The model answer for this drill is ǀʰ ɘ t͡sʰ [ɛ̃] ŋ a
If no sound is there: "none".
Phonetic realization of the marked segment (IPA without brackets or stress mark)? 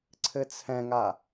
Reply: ɛ̃